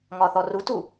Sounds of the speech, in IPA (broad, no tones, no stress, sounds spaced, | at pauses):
ŋ ɒ θ ɔ r u t u